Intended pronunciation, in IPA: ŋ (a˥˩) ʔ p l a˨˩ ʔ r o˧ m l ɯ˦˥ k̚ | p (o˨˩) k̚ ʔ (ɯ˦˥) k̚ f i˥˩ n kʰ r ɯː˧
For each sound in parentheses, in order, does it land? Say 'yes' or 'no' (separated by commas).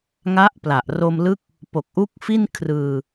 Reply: no, yes, no